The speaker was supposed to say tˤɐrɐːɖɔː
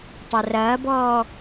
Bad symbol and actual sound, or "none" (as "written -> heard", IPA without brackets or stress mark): ɖ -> b